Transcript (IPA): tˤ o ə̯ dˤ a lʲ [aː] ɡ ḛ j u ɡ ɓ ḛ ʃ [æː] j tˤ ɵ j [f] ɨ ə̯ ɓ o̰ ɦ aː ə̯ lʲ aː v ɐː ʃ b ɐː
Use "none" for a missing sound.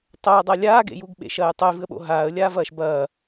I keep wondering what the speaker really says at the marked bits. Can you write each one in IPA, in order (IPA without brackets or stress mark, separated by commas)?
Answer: aː, ɐː, v